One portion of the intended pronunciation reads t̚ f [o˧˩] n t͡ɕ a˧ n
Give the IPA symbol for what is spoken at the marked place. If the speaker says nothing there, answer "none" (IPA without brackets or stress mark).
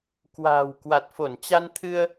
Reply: o˧˩